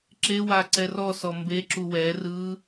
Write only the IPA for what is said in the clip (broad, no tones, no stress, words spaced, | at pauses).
ǁewa ǀɛrɔsɔ mbeǁu wɛrɯ